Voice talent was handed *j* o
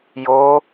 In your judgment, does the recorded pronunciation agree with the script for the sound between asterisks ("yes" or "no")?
yes